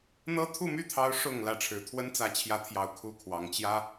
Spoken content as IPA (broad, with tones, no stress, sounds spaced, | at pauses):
n̪ ɤ˥ t̪ʰ u˥˧ m y˥˩ t̪ʰ ɑ˧˥ ʊ̯ ʂ ʊ˨˩ ŋ l ä˧˥ ʈ͡ʂʰ ɻ̩˨˩ t̪ʰ w ə˥ n t͡s ä˧˥ t͡ɕʰ j ä˧˥ t̪ʰ j ɑ˨˩ ʊ̯ kʰ u˥˩ kʰ w ɑ˧˥ ŋ t͡ɕ j ä˥